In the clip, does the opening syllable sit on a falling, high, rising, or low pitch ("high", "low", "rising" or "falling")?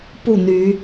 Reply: falling